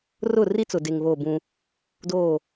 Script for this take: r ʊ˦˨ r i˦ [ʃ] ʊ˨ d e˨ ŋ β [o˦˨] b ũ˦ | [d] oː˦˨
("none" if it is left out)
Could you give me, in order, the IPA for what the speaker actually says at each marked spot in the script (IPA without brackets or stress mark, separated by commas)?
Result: t͡s, o˦˨, d